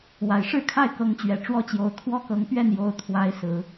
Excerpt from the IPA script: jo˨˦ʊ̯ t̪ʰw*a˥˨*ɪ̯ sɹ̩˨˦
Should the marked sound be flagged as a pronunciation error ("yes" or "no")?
yes